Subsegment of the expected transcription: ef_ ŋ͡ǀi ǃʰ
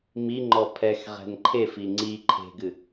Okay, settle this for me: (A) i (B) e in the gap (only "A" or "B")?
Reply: A